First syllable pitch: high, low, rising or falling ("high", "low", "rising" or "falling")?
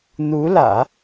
rising